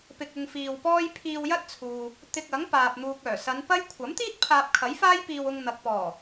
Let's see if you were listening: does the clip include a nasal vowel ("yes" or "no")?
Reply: no